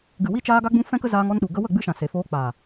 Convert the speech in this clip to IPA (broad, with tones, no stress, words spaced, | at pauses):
ɡɨ˨ wi˧t͡ʃaː˧ɡa˧ɡ͡bũ˧ fɛ̃˦kə˦zaː˧ŋ ɔ˧nɗu˨ ɡə˧wə˦˨ɡ͡bɨ˧ʃã˨ se˨foː˧k͡paː˨